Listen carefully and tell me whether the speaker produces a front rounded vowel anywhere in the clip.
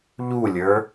no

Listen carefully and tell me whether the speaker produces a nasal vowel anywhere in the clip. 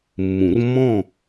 yes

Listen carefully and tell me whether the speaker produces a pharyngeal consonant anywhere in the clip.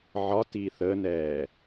yes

